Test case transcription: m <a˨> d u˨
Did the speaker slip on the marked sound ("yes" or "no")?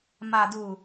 no